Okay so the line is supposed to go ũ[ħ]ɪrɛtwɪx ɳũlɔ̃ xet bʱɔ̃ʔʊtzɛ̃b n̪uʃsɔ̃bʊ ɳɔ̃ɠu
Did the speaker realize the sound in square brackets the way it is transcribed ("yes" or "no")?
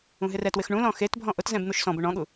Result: no